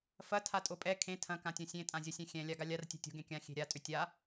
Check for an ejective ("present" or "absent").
present